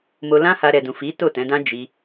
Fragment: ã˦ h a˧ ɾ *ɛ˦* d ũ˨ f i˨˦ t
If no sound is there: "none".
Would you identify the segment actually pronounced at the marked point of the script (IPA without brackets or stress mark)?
ɛ˨